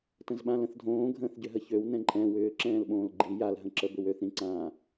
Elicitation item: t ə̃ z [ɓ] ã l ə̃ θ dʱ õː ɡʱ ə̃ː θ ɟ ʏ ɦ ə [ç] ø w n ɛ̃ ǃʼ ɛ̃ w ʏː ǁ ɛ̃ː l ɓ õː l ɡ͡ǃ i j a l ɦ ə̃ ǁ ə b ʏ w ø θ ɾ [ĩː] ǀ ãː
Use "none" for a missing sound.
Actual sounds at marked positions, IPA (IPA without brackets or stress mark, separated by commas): ɓ, ç, ĩ